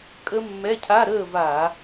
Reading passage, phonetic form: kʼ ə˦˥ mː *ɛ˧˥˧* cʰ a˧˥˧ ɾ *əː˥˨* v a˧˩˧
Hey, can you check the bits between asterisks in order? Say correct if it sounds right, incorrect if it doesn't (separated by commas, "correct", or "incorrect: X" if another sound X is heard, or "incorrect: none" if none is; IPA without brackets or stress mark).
correct, correct